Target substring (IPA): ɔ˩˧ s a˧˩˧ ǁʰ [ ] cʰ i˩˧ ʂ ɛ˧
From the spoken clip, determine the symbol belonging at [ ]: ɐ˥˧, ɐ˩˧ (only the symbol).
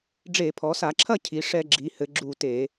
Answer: ɐ˥˧